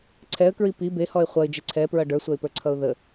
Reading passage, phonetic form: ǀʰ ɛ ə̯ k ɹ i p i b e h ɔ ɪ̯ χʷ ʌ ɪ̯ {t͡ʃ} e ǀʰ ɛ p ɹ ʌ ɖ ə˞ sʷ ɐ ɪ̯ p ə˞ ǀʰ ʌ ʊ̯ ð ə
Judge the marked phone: incorrect: d͡ʒ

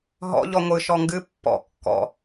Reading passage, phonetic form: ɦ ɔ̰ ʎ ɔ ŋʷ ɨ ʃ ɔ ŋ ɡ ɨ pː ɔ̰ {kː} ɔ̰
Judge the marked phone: correct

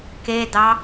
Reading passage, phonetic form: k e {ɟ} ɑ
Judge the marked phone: incorrect: d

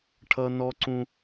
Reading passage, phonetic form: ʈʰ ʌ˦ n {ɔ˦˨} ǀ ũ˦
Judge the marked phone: incorrect: ɔ˦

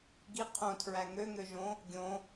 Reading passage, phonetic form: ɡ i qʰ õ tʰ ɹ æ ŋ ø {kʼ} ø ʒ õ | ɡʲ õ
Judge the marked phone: incorrect: ŋ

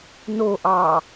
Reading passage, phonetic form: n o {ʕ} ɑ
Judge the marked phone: incorrect: ʔ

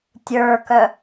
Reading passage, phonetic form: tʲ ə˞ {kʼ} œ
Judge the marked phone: incorrect: k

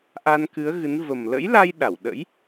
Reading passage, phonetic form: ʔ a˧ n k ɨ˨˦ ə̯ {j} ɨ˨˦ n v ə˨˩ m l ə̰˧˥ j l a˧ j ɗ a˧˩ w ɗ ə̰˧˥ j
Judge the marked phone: incorrect: ɣ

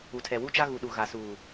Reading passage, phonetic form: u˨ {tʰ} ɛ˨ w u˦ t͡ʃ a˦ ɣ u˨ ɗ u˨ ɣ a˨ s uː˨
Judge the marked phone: correct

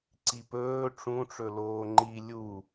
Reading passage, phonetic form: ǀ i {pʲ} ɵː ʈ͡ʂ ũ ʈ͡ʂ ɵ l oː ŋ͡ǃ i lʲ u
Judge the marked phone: incorrect: p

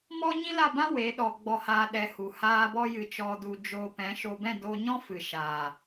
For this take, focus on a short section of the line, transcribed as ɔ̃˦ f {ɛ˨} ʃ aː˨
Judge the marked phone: incorrect: ɨ˨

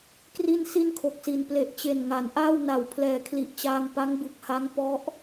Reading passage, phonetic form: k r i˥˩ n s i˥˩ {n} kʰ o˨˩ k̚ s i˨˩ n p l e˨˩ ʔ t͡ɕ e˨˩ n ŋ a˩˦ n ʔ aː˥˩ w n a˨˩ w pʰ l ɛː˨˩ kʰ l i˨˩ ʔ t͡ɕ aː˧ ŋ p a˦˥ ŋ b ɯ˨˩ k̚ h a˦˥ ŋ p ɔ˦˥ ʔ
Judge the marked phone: correct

